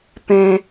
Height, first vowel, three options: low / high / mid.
mid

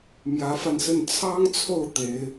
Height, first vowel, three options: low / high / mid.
low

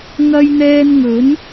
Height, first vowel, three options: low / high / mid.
low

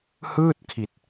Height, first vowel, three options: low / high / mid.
high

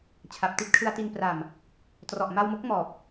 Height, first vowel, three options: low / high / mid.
low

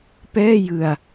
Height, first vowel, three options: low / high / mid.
mid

